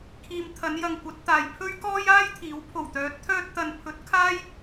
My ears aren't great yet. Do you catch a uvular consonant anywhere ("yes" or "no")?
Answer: no